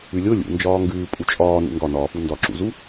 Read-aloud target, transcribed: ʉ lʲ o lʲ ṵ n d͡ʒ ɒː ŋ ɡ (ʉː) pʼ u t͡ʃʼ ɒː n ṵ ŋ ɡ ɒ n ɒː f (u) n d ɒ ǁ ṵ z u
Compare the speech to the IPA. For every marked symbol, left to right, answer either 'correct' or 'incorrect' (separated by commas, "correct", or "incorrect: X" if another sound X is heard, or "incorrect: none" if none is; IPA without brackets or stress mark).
correct, correct